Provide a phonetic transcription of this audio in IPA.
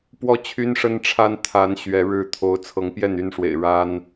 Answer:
pwɔ˥˨t͡ɕʰy˦n ʂə˦nʈ͡ʂʰa˦n t̪ʰa˨˦n ɕɥɛ˨˦ɻɻ̩˥˨ t̪ʰo˨˦ʊ̯t͡sʰɤ˨˦ŋpjɛ˥˨n y˥˨nʂwḛ˨˩ɪ̯ ɻa˦n

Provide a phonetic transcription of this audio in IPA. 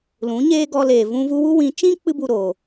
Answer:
lũ˨˦ ɲeː˦ ɡɔ˧leː˨ vũ˧vu˧wu˦wĩ˨˦ t͡ʃĩ˦k͡pɨ˧bu˨ ɾo˨

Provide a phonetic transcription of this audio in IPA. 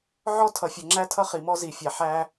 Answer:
ʕɔ˦tʰʌ˨fʲʌ˨ŋ͡ǁæ˦ tʰʌ˦χi˨mɔ˦zi˨ fʲæ˨ħæ˦

